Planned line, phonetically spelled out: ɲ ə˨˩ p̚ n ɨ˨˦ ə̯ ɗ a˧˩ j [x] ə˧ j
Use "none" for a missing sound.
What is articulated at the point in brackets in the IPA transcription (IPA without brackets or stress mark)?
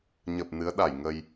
ŋ